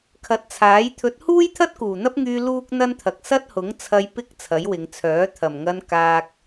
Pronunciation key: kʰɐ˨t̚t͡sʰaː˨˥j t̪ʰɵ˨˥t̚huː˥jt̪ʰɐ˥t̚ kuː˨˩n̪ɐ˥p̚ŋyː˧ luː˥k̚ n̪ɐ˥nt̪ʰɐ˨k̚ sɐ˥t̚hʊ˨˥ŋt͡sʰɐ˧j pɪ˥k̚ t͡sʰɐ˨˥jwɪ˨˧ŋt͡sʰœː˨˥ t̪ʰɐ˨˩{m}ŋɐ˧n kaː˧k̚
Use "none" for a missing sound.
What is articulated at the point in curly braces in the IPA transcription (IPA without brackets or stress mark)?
m